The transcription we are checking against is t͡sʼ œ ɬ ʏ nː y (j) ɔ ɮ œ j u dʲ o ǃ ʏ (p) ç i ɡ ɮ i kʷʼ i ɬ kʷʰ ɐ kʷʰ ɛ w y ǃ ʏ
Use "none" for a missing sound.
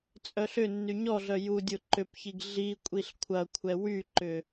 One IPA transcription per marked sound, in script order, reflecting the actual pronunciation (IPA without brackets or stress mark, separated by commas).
ɲ, p